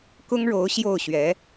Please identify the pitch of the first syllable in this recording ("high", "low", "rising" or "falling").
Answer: high